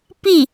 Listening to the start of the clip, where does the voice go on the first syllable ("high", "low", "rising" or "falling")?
falling